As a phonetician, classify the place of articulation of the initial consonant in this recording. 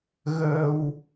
velar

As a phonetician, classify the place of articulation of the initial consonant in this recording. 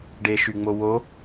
retroflex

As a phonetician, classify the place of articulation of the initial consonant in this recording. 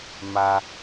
labial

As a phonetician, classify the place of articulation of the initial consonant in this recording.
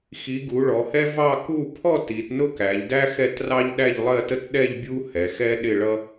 velar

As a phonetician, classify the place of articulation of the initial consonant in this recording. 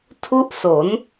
alveolar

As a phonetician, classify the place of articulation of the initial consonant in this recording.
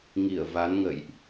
velar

